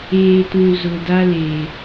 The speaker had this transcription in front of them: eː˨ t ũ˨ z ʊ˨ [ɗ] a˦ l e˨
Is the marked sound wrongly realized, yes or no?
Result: yes